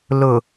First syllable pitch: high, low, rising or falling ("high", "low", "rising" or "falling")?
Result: low